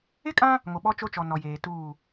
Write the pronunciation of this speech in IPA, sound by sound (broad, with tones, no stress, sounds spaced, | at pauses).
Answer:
ɪ˦ kʼ ã˦ | ŋ o˨ ɓ ɔ˦ t͡ʃ o˦ t͡ʃ ɔ˨ n ɔ˨ j eː˨ t uː˦˨